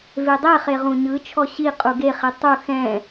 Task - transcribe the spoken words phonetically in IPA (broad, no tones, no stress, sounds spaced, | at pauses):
v e dˤ e χ e ʁ ũ ɲ ɯ t͡ʃʰ ɔ ɕ i qʼ u ɡ e χ i tˤ u x ɛ̃